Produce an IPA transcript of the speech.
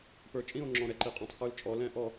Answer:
p ə˞˧ t͡ʃʼ ĩ˥˧ o̯ ŋ͡ǁ ɔ̃˧ ɾ ɛ˧ ǃ i˧ qʼ ɔ̃˧ tˤ x ə˞˧ l t͡ʃʼ ɔ˧ l ɛ̃˥˧ ʔ ɔ˥˧

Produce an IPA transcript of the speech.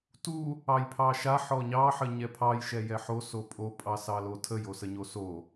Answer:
t u | ɑ j pʰ ɑ ʃ a ħ ɔ ɲ ɑ ħ ə ɲ ɛ pʰ ɑ j ʃ ɛ j ɛ ħ o s o pʼ o pʼ ɑ s ɑ l o tʰ ə j o s ə ɲ o s o

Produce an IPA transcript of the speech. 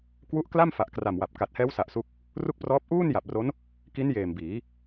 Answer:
k w u˦˥ ʔ k l a˥˩ m f a˨˩ ʔ k r a˨˩ m w a˨˩ p̚ k a˨˩ t̚ h ɛː˦˥ w s a˨˩ ʔ s u˦˥ k̚ | r u˥˩ k̚ p r ɔː˦˥ p̚ ʔ uː˥˩ n j a˨˩ p̚ r o˦˥ n | k i˦˥ n j eː˨˩ m b iː˩˦

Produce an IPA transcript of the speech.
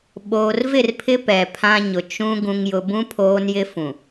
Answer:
ɓ oː˨ r v ɪ˦˨ r pʰ ɪ˦ p ɛ˨ pʰ ã˦ ɲ ʊ˨ t͡ʃ ũ˦ ɡ ũ˨ ŋ j ʊ˨ b ũ˦ pʰ oː˦ n j ɪ˦ f ũ˨

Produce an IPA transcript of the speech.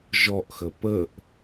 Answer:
ʒ ɔ ʔ x ə p ə ʔ

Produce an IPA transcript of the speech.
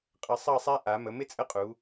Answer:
qʼ ə˧˩ sˤ ʌ˥˧ sˤ æ˥ ʔ a˩˧ m ə˩˧ m ɪ˥ t͡sʼ ə˥˧ qʼ u˩˧

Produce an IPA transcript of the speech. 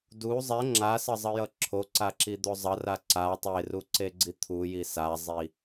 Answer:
d u zˤ ɛ ŋ͡ǁ a s ʌ zˤ ʌ j ʌ ǁʰ o ǀ a ǁ i d̪ o zˤ ʌ r a ǀ a tˤ e r u ǀ e ɡ͡ǀ i t̪ʰ u j i s a zˤ i

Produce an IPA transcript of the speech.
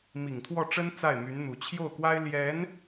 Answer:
m i˨˩ ŋ t̪ʰ w ɔ˥˩ ʈ͡ʂ ə˥ n t͡s a˥˩ ɪ̯ m y˧˥ n n̪ u˨˩ t͡ɕʰ j o˥˩ ʊ̯ k w a˥ ɪ̯ l j ɛ˧˥ n

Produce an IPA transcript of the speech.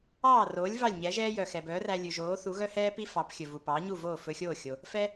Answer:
ɑː˥˩ r oː˩˥ lʲ v ɑ˥˩ lʲ ɲ ɛ˩˥ ʒ ɛː˥ j œ˩ x ɛ˩ b œː˩˥ r æ˧ lʲ ʉ˩ ʒ oː˩˥ θ u˩˥ ɣ œ˥ h ɛː˥ p i˥ f ɑ˩˥ p xʲ ɵ˩ v u˩ p ɑː˩˥ ɲ u˥˩ v oː˥˩ f ɵ˧ xʲ oː˥˩ xʲ o˩ | f ɛ˥

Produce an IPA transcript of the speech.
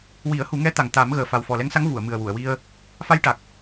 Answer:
w i˨˩˦ ə̯ h u˨˩˦ ŋ ɛ˧˥ t̪ a˨˩ ŋ t̪ a˨˩˦ m ɣ əː˨˩ f a˨˩ w f ɔ˨˩ l ɛ˧˥ ŋ s a˧˥ ŋ v u˨˩˨ ə̯ m ɨ˨˩ ə̯ w u˨˩˨ ə̯ w i˧ ə̯ | f a˧ j ʈ a˨˩ k̚

